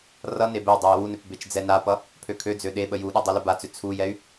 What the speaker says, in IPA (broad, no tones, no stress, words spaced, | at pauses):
rʌne bɛy̯dˤøi̯ wunøp bet͡ʃd͡zɛnapʌ | pʰøkʰød͡zø ɗeɓə juɗu dˤɛləbat͡sø t͡sʰujɛy̯